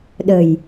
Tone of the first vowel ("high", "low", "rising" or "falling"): low